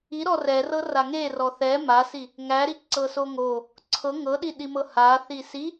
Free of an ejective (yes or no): yes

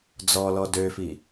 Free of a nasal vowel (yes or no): yes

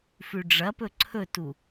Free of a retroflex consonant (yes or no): no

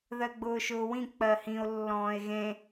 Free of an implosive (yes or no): yes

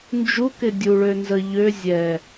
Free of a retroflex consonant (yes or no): no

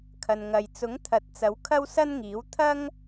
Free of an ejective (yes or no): yes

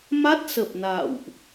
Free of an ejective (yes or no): yes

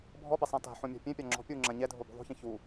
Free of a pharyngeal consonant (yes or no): no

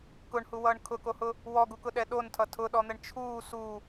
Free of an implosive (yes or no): no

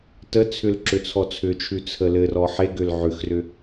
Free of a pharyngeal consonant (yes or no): no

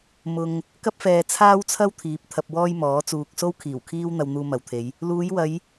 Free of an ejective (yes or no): yes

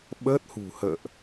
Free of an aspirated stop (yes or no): yes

